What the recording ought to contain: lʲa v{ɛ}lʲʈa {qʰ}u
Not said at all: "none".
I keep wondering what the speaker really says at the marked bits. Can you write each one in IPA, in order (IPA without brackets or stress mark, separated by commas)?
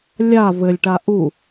ɘ, ʔ